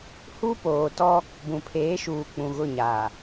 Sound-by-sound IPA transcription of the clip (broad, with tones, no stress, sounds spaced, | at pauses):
h u˦ p oː˨ t ɔ˦ | b ũ˨ pʰ eː˨˦ ʃ uː˨ k͡p ũ˨ ɣ ʊ˦˨ ɲ aː˨